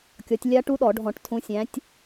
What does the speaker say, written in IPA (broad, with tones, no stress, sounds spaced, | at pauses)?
kʲ ɔ˨˦ tʲ lʲ a˦˥ ʈ u˦˥ ɗ ɔ˧˩˧ ɖʱ ɔ̃˧˩˧ ʈ tʰ ũ˨˦ sʲ æ̃˨˦ tʲ